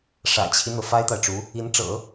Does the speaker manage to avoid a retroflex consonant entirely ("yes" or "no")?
no